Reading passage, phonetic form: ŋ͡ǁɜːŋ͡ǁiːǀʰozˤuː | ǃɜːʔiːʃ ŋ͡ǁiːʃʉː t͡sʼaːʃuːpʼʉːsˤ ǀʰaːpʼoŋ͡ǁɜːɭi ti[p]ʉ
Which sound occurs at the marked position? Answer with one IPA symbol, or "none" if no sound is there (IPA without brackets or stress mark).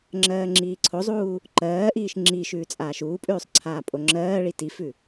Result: f